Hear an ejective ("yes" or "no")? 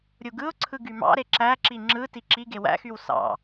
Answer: no